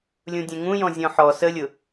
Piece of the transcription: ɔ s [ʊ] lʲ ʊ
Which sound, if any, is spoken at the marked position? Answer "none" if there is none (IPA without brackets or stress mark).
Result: ə